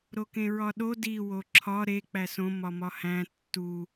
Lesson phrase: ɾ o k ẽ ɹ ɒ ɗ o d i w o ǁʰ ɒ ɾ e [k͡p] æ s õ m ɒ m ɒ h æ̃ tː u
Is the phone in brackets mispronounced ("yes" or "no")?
no